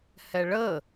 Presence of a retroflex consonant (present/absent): present